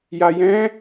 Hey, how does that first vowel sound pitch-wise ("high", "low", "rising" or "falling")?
low